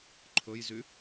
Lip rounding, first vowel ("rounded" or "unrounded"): rounded